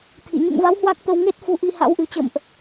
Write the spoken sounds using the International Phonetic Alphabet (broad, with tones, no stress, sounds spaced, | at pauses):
t̪ʰ ḭ˧˨ ɲ ṵ˧˨ ŋ v a˨˦ w h w a˦˥ k̚ t̪ ə˧ w ŋ e˦˥ t̚ f u˨˦ ʔ i˧ h a̰˧˥ w ʔ ɨ˨˩ t͡ɕ ə̰˧˨ m ʔ